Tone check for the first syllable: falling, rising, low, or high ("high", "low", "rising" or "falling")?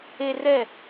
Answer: high